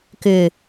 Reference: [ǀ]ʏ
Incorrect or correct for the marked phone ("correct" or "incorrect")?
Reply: incorrect